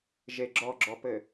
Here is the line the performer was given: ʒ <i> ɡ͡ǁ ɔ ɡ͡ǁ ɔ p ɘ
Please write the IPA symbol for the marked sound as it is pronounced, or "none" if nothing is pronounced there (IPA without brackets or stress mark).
e